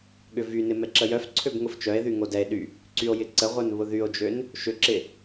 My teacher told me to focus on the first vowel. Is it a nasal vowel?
no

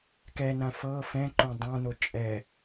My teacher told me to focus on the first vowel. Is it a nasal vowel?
no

